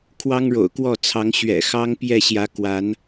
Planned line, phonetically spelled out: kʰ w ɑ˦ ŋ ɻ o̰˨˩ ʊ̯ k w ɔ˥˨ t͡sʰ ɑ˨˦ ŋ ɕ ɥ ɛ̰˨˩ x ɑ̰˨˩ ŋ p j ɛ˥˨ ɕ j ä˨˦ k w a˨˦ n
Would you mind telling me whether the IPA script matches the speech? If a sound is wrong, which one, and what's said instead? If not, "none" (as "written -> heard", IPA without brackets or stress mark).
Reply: ɑ̰˨˩ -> ɑ˦